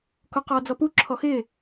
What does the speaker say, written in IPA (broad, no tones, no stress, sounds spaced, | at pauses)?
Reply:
k o q ɔː d͡z ɔ p u ǁʰ ɔ x ɪː